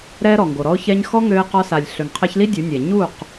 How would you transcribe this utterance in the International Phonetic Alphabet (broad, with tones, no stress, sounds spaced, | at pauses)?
ɾ ɛ˧ ɾ ɔ˨ ŋ ɡ o˨ ɾ ɔ˧ ʊ̯ ç ɛ˧ ɲ x ɔ˦ ŋ ø˧ ɪ̯ q ɔ˧ s a˨ lʲ ɬ ø˨ ŋ qʰ ɛ˧ ç l i˦ dʲ u˨˦ nʲ ɛ˨ ɲ u˦˨ q